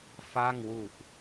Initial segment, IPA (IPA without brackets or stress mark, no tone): f